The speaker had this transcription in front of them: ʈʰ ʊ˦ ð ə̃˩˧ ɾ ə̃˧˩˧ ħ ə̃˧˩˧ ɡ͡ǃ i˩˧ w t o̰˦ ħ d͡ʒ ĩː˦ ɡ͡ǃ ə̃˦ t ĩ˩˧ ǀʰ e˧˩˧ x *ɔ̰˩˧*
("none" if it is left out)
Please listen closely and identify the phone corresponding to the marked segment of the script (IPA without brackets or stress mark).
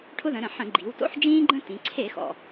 ɔ̰˩